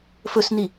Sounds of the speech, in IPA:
fɵsni

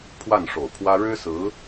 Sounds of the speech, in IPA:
pʰwa˥˩nʂo˨˩ʊ̯pʰwä˥ ɻɻ̩˥sɹ̩˧˥

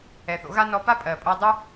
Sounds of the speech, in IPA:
ɛ˨θo̰˨˦ɣa˦ nɔ˧pa˦pʼɜ˨ pʼo˧dˤu˦

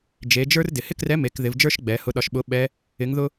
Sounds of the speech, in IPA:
d͡ʒe˩˧d͡ʒə˞˥r dɪ˩hɪ˥krɛ˧˥ me˩˧k ðɪ˩˧vd͡ʒə˞˥ʃ ɡ͡bɛ˩˧ hʊ˧ɗɒ˧ʃɓʊ˧˥ ɓɛ˧˥ | ɪ˧˥ŋðʊ˥

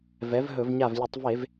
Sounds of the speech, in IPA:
vɛ˩˥vɦɵ˧˩˧v ɲa˧˩vlʲə˧˩˧tˤve˧˩˧v

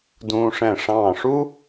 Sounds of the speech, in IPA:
dũː˧ʂɛ̃˧˩ ʂɑ̃ː˧˩ʂu˥

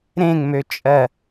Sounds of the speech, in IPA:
ɾẽŋmøt͡ʃʼɜ

